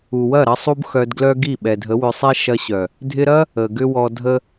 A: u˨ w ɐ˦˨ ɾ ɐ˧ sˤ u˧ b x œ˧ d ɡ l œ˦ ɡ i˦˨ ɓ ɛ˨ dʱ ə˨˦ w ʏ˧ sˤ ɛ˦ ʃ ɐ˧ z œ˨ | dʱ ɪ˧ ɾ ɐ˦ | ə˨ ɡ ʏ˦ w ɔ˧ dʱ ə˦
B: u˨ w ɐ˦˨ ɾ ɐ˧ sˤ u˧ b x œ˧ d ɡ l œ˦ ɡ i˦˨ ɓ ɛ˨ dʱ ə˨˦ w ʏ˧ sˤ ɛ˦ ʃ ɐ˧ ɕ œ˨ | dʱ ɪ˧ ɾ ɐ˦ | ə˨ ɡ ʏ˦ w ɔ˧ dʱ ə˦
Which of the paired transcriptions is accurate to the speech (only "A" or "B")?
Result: B